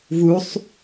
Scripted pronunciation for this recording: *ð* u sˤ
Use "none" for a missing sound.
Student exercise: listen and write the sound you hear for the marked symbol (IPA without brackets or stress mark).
v